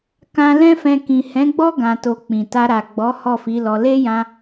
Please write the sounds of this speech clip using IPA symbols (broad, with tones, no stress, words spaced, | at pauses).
kã˧ lɛ̃˦fɛ̃˧ kĩ˨hɛ̃˨˦ɡ͡bɔ˦ ɡã˧to˧ k͡pĩ˨ta˧ ɾa˨ɡ͡bɔ˨˦ hɔ˦˨fi˨˦lɔ˧ le˦jã˧